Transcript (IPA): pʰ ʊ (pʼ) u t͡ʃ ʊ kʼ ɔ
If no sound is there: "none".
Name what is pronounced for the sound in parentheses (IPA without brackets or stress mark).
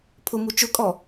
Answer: m